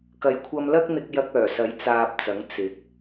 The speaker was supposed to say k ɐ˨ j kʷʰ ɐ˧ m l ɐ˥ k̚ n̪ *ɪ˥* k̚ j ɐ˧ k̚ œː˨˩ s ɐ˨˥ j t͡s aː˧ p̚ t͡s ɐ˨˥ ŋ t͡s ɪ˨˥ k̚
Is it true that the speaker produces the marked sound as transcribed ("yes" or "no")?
no